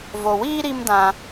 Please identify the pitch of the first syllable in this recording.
low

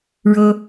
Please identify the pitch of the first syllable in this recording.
high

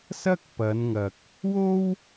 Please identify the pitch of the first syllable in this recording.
high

